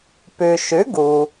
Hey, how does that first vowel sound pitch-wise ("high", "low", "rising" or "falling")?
low